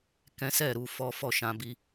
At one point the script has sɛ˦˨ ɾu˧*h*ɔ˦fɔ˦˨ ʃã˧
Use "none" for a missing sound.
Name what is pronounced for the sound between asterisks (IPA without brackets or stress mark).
f